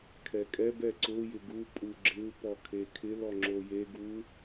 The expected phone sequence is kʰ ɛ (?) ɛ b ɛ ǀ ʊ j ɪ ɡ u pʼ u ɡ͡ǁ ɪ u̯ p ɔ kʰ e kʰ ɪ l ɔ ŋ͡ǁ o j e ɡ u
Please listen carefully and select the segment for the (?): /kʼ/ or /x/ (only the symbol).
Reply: kʼ